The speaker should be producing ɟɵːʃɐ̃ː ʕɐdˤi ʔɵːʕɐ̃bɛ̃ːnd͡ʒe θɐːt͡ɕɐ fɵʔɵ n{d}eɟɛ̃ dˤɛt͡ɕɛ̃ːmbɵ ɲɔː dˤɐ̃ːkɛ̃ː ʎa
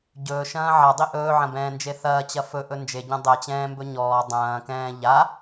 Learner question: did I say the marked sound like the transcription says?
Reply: no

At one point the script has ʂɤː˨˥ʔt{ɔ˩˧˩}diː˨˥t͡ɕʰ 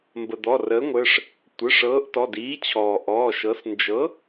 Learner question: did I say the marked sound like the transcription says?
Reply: yes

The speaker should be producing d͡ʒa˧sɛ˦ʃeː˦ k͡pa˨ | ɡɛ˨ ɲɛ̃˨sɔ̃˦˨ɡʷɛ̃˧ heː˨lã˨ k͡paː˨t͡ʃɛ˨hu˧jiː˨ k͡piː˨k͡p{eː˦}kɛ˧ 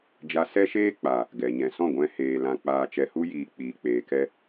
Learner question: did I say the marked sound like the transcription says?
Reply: no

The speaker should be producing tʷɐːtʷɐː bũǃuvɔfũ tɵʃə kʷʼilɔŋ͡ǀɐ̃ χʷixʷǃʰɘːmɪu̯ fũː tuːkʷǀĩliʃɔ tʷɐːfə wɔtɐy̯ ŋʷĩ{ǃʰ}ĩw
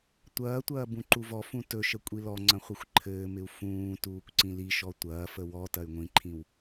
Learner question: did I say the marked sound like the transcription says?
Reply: yes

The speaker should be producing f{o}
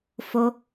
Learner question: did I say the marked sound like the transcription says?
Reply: yes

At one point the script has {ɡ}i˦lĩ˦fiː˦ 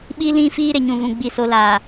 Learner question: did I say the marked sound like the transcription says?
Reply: no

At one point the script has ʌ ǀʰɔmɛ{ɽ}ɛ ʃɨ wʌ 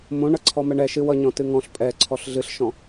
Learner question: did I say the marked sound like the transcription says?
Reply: no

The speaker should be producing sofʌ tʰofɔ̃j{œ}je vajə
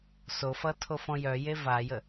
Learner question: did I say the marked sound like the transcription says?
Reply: yes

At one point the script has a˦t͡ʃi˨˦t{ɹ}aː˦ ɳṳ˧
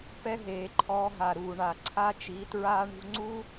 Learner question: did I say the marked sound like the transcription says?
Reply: yes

